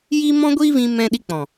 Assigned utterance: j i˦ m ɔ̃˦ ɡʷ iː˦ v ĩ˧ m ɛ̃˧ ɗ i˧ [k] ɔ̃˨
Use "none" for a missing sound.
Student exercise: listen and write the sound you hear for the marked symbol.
k͡p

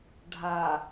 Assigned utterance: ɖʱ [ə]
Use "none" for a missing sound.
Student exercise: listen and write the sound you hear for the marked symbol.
a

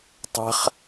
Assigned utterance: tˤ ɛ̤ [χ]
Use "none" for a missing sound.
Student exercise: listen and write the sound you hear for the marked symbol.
χ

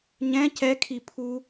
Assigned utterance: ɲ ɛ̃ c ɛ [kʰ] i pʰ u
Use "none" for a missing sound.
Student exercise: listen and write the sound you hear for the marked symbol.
kʰ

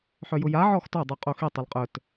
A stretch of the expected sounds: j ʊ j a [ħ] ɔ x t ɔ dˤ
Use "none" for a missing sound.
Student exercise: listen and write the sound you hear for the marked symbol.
ʕ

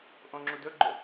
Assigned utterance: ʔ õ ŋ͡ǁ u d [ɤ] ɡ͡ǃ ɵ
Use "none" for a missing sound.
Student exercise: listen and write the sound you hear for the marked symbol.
ɵ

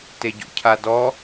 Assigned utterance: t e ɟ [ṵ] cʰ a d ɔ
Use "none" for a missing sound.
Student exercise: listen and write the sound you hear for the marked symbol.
ṵ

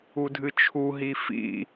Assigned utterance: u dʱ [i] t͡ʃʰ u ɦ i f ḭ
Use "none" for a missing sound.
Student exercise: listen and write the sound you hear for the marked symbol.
ɨ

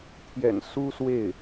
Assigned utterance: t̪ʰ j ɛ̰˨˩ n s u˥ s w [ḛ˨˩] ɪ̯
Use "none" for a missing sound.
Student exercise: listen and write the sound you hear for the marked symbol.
e˥˩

